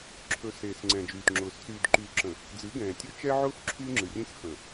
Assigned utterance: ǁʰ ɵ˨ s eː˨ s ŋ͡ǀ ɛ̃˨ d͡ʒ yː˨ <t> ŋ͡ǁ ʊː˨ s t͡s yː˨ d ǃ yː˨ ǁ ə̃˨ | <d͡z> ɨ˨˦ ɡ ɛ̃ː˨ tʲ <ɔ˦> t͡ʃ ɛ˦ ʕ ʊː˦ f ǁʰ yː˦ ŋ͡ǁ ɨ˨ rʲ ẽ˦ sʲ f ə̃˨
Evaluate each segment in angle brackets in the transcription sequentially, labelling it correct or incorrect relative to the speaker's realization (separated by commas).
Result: correct, correct, incorrect